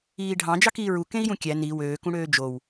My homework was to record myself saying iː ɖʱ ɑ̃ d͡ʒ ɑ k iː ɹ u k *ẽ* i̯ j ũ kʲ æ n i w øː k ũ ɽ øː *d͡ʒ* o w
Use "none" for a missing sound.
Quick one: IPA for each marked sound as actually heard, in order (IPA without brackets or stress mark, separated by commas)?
ẽ, d͡ʒ